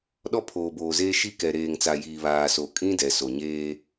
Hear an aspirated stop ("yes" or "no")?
yes